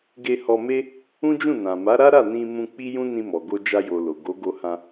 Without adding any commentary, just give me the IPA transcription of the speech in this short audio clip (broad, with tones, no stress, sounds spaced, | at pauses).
ɡ e˧ h ɔ˧ m e˦ | ũ˦ d͡ʒ ũ˦˨ n ã˨ m a˨˦ ɾ a˦ ɾ a˦˨ n ĩ˧ m ũ˧ k͡p i˦ j ũ˦ n ĩ˧ m ɔ˨ ɡ o˧ d͡ʒ a˧ j o˨ l o˨ ɡ o˨˦ ɡ o˧ h ã˧